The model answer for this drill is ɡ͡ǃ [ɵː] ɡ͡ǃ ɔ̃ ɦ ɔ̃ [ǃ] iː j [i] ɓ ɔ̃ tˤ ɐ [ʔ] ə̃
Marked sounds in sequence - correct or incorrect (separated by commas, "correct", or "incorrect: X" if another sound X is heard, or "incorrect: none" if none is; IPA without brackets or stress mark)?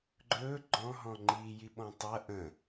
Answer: correct, incorrect: ŋ͡ǃ, correct, correct